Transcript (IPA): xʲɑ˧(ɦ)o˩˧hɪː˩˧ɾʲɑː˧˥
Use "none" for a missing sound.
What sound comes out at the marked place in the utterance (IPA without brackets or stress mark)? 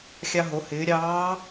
ɦ